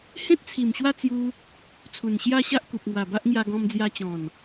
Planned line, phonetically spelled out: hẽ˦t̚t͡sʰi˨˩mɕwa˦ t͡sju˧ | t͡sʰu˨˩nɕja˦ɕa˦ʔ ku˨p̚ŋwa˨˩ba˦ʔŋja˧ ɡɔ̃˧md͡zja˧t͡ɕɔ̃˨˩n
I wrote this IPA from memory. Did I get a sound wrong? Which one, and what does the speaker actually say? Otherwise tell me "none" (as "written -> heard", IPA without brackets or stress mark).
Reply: none